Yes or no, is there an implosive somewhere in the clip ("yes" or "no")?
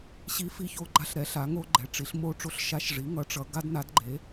no